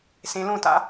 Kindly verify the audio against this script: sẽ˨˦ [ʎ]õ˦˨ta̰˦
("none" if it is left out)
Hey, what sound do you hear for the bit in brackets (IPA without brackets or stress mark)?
l